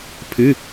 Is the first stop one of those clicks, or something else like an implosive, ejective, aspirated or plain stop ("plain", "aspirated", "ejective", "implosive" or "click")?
aspirated